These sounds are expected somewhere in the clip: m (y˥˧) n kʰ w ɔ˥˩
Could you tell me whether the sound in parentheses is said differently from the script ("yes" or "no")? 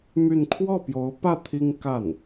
no